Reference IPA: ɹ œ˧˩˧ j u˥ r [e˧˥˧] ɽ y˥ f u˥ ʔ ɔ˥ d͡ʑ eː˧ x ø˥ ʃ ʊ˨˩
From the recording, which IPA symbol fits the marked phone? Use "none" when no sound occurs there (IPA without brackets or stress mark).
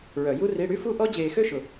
i˧˥˧